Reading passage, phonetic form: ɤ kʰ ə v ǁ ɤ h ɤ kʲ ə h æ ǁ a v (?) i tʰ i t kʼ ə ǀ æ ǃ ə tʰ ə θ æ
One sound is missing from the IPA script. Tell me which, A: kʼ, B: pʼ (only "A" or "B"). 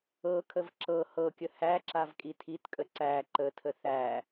A